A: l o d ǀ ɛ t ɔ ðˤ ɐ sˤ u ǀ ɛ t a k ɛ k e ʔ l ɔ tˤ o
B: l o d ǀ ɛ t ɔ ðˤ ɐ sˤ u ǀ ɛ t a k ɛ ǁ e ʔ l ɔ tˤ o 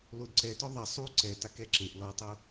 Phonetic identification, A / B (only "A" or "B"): B